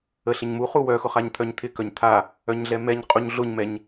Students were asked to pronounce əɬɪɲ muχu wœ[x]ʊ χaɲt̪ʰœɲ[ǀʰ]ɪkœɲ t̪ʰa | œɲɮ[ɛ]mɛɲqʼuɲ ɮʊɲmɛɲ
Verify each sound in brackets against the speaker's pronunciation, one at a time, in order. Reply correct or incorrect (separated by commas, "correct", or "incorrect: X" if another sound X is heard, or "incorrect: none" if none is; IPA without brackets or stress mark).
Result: correct, incorrect: t̪ʰ, correct